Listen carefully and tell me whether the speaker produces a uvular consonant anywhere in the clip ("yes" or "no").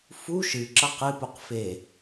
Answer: yes